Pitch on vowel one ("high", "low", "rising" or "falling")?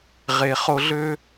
low